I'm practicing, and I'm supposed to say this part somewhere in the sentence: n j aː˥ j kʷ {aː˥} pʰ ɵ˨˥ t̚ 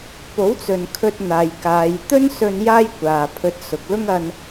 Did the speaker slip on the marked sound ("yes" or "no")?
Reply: yes